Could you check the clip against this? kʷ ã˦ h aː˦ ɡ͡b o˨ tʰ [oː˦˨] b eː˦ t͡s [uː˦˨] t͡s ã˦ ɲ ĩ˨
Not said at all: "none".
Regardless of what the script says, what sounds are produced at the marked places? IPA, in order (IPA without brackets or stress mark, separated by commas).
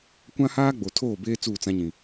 oː˦˨, uː˦˨